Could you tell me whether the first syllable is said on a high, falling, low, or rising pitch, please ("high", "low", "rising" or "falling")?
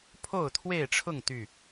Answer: falling